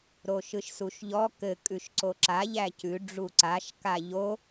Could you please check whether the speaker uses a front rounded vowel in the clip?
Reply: no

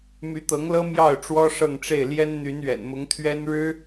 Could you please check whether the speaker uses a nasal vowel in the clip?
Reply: no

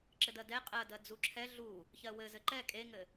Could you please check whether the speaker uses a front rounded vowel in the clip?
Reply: no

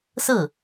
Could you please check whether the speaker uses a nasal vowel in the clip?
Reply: no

